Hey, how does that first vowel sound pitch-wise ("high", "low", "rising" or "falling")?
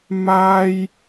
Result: high